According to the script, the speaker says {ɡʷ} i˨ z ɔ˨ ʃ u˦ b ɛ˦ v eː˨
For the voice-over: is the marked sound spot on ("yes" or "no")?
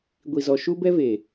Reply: yes